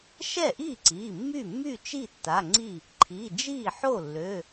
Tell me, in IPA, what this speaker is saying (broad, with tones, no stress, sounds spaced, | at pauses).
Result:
ʃ ɛ˥˩ ʔ iː˥˩ ǀ iː˩˧˩ mː y˥˩ mː y˥˩ t͡ʃ i˥˩ tː a˩˧˩ ŋ͡ǀ i˥˩ | ǃʰ i˩˧˩ d͡ʒ iː˥˩ ħ o˥˩ lː ø˩˧˩